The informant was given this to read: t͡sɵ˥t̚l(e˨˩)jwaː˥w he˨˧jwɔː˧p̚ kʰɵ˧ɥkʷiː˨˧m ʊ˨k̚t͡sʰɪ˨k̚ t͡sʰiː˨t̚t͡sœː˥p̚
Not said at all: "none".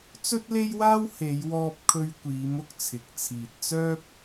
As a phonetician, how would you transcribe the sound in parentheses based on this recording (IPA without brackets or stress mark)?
e˥